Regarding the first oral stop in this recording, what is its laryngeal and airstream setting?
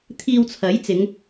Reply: aspirated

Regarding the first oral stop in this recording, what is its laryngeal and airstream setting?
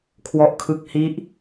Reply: aspirated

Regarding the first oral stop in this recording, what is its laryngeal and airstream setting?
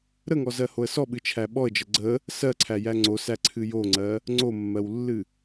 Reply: implosive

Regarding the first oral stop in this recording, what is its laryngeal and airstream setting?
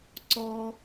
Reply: click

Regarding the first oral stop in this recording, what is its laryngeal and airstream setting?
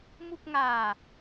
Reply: plain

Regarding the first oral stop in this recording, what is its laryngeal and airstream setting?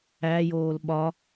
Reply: implosive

